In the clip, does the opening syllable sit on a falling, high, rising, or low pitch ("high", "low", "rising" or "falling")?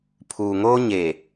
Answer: low